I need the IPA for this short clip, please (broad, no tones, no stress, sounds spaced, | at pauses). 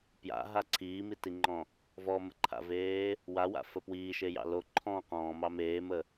p j a̰ ɦ a ǀʰ iː m i t i ŋ͡ǃ ɔ̃ | v ɔ m ə ǃʰ a̰ v eː | w a w a̰ f ə p w iː ʃ e j ɑ̰ l o ǃʰ ɔ̃ q ɔ̃ː m ɑ m eː m ə